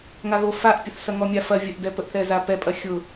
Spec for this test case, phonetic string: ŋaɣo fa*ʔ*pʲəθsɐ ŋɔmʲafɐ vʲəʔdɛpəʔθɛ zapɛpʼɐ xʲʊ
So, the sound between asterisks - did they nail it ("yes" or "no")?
yes